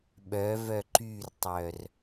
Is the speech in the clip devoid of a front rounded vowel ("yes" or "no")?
no